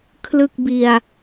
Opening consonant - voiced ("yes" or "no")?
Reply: no